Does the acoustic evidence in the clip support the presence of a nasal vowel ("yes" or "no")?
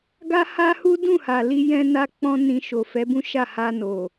yes